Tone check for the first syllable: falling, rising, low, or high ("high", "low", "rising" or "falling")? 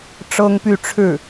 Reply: high